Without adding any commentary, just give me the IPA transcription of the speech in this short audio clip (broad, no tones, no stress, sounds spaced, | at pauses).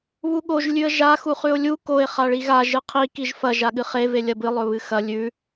β u ɠ o ʒ lʲ ʉ ə̯ ʒ a x u χ ʉ ʊ̯ lʲ u k o ɪ̯ χ a ɭ i ɣ a ʒ ɨ qʰ i k i ʒ f ɐ ʒ a ɠ ɨ χ e v e lʲ ɐ b ɨ lˠ ɵ β ɨ x ɐ lʲ ʉ